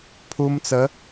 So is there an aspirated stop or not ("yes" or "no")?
yes